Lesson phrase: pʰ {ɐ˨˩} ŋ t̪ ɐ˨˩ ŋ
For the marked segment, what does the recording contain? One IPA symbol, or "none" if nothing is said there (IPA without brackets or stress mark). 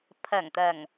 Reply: ɐ˨˩